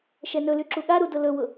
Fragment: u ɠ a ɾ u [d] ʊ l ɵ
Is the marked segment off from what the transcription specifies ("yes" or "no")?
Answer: no